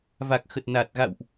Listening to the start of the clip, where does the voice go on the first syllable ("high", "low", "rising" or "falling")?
low